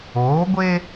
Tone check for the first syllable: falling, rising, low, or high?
rising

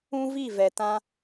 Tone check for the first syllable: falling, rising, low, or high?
high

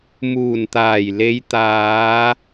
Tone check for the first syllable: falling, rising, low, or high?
low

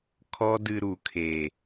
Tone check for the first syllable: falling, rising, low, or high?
high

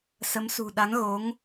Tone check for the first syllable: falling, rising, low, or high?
rising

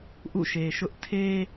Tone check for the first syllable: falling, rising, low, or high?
falling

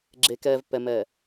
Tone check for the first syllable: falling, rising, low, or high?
low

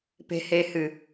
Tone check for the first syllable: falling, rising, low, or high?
low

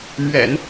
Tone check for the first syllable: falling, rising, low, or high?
low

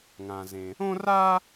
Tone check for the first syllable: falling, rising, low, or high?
low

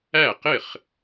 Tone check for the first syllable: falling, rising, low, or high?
falling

